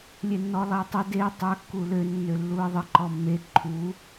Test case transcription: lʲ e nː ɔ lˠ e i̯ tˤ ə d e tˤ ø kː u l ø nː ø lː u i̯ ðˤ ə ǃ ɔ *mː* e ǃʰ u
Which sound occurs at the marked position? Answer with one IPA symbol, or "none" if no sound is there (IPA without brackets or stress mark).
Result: mː